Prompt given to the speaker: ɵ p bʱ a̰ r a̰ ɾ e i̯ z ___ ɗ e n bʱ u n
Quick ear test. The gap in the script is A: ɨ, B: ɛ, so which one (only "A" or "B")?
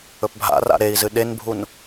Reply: A